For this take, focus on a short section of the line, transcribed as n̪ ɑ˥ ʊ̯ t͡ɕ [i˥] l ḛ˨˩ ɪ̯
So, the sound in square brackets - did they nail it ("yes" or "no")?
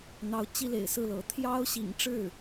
yes